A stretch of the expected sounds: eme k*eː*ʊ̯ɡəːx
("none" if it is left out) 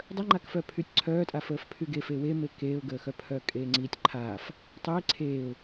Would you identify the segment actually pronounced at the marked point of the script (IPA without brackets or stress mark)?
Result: eː